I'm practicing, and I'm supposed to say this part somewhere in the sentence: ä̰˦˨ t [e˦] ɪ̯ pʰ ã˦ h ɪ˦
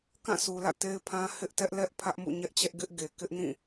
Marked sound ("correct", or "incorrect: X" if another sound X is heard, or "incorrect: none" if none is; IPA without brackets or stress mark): correct